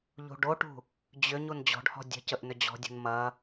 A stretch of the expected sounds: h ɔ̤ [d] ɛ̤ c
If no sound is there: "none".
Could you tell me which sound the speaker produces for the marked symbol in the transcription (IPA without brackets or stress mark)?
dʲ